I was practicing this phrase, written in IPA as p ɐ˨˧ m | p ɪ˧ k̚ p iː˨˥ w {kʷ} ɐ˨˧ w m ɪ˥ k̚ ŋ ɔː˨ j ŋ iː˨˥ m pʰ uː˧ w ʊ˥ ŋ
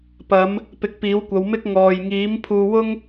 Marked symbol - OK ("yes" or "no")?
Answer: yes